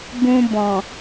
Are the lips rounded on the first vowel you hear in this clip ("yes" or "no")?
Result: yes